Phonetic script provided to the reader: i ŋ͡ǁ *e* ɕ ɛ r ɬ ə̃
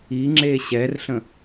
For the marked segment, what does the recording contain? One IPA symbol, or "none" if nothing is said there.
e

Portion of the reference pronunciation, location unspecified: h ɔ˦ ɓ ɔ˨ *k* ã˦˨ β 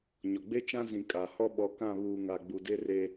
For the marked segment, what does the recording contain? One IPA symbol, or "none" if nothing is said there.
k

